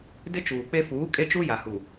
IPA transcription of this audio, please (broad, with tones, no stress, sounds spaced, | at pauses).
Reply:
d ɪ˦ t͡ʃ uː˨ k͡p e˦ f uː˨˦ kʼ e˦ t͡ʃ u˦ j a˨ h u˨